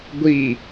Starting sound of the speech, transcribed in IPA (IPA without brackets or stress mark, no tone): ɡʷ